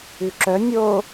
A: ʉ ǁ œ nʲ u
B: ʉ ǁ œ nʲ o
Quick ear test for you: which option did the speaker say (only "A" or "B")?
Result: B